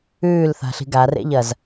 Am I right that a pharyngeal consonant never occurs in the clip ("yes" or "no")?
yes